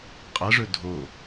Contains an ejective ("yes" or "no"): yes